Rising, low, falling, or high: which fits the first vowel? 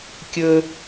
high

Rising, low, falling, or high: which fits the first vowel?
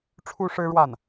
high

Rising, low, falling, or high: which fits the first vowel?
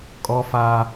high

